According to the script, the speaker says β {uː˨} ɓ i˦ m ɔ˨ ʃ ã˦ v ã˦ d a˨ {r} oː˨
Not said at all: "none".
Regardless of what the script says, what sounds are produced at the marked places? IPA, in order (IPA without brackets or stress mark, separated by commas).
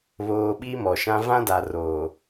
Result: oː˨, r